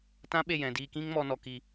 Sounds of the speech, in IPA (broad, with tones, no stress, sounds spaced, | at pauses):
t ã˦ ɓ e˦˨ j ɛ̃˨ d iː˧ k ĩ˦ ŋ m ɔ˧ n ɔ˧ k i˧